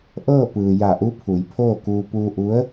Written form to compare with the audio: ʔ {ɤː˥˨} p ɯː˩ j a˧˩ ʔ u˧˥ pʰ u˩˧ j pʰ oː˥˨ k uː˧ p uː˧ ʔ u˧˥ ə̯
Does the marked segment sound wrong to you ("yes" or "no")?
no